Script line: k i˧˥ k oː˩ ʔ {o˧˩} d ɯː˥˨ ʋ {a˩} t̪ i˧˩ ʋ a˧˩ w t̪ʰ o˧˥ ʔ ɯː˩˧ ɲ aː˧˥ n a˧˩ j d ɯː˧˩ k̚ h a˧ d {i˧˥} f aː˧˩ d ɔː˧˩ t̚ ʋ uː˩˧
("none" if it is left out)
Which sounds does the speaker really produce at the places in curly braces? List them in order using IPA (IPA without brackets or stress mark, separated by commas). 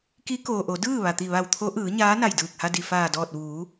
o˩˧, a˩, i˩